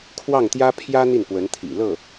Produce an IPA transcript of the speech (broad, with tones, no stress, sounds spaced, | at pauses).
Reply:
kʰ w ɑ˥˩ ŋ t̪ j ä˥ pʰ j ä˥ n̪ i˥˩ n p w ə˧˥ n t̪ʰ ḭ˨˩ l ɤ˥˩